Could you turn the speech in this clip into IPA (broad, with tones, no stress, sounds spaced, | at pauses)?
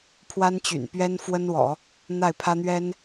pʰ w a˥ n t͡ɕ y̰˨˩ n p ɥ ɛ˥ n f w ə˥ n w ɔ̰˨˩˦ | n̪ a˥˩ ɪ̯ pʰ ä˥ n̪ ɥ ɛ˥ n